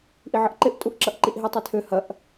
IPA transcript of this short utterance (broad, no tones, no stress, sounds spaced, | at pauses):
ʔ i ʕ ə ʔ ǃ ɪ ʔ tʼ u ʔ ǁ ɐ ʔ ǃ i ʔ ɦ i tˤ ɪ tʰ ø h ɐ ʔ